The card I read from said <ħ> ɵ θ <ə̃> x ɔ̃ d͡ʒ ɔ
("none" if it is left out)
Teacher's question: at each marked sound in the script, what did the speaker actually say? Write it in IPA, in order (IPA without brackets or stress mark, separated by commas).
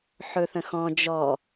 ħ, ə̃